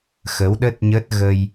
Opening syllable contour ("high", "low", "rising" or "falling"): rising